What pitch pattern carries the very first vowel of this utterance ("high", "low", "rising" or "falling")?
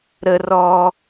high